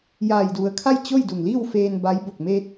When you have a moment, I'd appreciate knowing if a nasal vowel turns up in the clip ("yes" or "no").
no